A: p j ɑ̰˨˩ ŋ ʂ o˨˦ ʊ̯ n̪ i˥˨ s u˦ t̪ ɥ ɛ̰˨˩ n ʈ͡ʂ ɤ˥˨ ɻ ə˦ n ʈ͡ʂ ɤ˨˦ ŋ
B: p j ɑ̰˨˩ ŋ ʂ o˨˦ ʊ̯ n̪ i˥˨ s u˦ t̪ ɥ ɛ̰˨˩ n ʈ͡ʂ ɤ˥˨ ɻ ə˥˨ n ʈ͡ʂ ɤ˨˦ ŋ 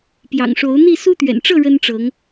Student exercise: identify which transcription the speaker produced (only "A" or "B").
A